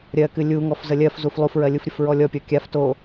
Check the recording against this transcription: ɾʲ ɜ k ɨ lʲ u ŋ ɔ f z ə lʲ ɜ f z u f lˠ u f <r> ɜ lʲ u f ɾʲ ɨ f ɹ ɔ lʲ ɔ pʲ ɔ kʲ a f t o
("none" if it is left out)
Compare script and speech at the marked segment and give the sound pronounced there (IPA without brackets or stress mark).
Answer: ɹ